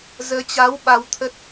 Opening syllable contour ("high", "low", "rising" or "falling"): rising